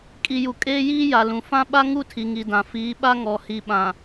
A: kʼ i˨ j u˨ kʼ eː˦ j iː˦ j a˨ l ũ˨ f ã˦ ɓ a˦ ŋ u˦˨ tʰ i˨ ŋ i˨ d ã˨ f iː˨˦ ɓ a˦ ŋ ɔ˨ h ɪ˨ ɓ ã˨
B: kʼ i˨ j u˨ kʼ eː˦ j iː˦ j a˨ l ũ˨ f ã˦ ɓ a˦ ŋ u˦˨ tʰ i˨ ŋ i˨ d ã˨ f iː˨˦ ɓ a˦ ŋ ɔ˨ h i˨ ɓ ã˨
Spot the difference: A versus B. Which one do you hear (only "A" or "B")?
B